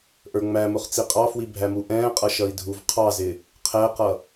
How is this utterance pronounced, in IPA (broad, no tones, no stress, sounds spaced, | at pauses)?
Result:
ʔ ə˞ ŋ͡m æ m ʊ χ t͡s i qʼ ɑ f w i bʱ æ m u ʔ ɛ̃ː qʼ ʌ ʃ ʌ i̯ dʱ u v qʰ ɑ z ɪ | qʰ ɛ q ʌ